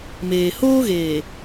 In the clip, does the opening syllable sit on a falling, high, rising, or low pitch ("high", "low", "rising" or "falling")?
low